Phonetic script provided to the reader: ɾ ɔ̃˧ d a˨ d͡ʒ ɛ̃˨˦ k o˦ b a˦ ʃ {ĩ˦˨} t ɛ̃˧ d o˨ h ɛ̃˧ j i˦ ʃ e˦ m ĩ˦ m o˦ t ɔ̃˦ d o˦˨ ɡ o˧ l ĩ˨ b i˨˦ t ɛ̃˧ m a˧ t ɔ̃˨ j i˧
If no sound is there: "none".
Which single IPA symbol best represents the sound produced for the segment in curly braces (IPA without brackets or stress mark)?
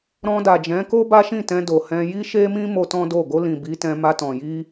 ĩ˦˨